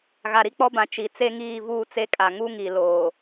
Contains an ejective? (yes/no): yes